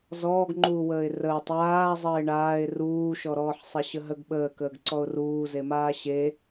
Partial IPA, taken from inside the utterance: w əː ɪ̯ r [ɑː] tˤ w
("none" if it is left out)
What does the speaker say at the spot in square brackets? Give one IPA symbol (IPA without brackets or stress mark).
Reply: əː